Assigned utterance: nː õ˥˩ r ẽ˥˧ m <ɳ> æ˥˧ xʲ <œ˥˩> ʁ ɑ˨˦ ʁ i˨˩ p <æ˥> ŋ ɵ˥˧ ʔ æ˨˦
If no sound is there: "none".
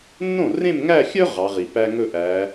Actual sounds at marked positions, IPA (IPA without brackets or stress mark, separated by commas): ŋ, œ˥, æ˥